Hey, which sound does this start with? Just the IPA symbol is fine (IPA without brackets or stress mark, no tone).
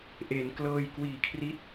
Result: ʔ